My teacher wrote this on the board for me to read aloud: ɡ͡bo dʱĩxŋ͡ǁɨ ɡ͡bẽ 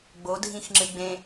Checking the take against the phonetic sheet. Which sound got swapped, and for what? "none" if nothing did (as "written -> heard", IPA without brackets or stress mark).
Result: none